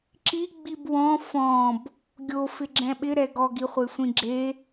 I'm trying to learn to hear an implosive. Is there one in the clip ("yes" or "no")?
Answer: yes